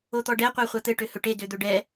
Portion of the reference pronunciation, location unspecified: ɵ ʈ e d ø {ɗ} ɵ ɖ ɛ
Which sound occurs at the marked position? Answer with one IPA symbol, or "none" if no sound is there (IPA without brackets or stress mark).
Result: d̪